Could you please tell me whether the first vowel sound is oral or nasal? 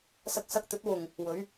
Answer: oral